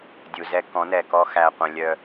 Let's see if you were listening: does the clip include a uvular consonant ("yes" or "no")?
yes